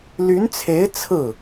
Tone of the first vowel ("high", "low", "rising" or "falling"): rising